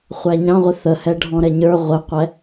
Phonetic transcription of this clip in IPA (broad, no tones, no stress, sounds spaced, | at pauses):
χʷ æ ɲ ɑ̃ ʁʷ ɪ θ ə h ɛ ɖʱ ɔ̃ ɾ ɛ ɲ ə˞ ʁʷ ɪ qʷ ɛ